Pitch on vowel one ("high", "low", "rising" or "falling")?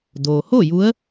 low